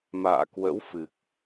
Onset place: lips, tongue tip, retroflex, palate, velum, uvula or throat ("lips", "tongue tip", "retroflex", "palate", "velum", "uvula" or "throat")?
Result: lips